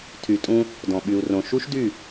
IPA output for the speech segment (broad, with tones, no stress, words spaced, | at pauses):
tʰy˨tʼũ˦ | dɔ̃˨ɓy˨u̯rõ˨ ʃu˦ʃdy˦˨